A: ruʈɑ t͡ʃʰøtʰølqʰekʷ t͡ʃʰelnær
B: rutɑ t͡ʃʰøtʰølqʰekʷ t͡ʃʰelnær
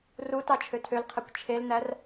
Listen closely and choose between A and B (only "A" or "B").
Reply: B